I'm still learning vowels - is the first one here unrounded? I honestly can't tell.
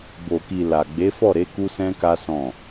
no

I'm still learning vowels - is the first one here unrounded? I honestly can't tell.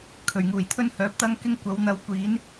no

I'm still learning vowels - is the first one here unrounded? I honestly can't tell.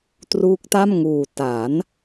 no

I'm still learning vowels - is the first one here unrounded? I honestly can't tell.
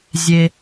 yes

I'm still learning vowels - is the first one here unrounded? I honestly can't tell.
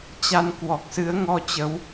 yes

